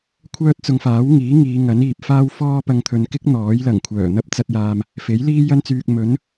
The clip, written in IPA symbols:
kʷʰœː˥t̚t͡sʊ˧ŋfaː˨˥wŋiː˨˥ ŋiː˨˧ ŋɐ˨˥niː˨p̚ faː˥wfɔː˥pɐ˧ŋt̪ʰɵ˨n kɪ˥k̚ n̪ɔː˨˥jlɐ˨˩ŋkʷʰœː˨˩ n̪ɐ˥p̚t͡sɐ˧t̚jaː˨m | fe˨˥jliː˥jɐ˥nt͡syː˧k̚ mɵ˨˥n

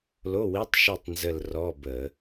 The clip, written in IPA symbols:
lo˧˥˧wi˧˥˧tˤʃi˦˨tˤ nzə˦˨lrɔ˧˥˧bə˧˩˧

